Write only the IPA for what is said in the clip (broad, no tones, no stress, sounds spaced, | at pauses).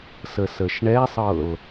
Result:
s ə s ə ʃ ɳ ɛ sˤ ɤ l